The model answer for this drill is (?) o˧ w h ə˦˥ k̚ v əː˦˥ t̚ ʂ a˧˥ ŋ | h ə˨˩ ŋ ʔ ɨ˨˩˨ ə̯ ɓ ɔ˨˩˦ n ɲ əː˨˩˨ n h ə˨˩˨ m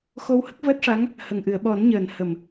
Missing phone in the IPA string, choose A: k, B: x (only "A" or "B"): B